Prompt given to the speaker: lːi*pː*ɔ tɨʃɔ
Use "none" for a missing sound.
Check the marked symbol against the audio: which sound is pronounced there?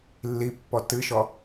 pː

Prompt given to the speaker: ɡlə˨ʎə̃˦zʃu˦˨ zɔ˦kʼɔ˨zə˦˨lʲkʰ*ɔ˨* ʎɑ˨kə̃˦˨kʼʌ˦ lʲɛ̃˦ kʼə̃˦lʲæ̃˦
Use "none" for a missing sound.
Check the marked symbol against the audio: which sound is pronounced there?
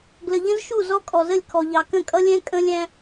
ɔ˨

